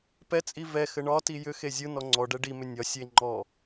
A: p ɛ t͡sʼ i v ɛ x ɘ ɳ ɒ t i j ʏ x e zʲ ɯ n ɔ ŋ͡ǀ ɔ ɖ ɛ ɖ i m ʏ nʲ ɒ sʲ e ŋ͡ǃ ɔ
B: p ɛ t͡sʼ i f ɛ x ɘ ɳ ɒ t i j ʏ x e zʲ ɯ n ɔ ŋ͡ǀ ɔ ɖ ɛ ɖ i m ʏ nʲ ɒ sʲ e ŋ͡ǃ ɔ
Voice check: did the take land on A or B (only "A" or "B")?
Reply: A